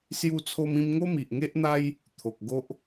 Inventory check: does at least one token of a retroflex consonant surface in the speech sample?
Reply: no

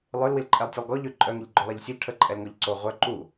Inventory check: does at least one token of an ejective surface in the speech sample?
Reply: yes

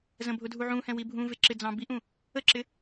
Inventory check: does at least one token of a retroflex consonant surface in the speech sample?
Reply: no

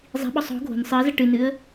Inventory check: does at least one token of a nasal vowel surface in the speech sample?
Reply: no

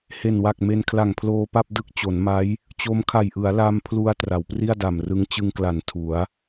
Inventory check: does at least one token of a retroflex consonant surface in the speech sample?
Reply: no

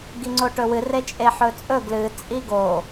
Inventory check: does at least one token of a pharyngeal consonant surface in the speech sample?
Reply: yes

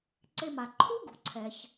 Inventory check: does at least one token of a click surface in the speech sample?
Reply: yes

